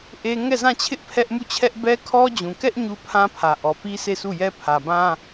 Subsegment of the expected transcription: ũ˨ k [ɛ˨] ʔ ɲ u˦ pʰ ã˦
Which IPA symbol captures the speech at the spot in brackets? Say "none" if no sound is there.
ɛ˦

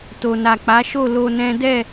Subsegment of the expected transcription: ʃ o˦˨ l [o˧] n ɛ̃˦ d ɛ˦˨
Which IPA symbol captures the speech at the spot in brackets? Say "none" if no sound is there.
o˧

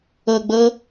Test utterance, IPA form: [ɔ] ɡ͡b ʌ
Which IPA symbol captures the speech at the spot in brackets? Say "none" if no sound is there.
ʌ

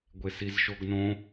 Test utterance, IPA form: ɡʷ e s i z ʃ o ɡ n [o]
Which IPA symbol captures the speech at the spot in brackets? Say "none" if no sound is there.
õ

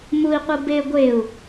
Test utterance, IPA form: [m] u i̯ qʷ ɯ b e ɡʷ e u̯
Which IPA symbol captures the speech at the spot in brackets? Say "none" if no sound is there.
m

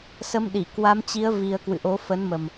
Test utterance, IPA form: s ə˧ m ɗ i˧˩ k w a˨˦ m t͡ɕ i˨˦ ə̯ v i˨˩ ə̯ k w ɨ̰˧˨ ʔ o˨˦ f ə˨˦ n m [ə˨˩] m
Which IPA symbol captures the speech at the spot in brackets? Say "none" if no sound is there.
ə˨˩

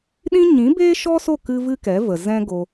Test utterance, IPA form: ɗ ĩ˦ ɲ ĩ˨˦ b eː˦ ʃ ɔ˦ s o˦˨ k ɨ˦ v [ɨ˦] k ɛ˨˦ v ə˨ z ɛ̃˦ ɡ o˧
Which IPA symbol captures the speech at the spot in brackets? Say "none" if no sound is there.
ɨ˦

